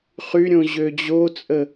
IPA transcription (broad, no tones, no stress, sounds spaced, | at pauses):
χ y ɾʲ õ ʑ ø d͡ʑ o t͡sʼ ə